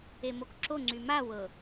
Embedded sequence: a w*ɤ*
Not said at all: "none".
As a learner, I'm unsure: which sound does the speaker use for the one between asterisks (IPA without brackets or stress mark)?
ɤ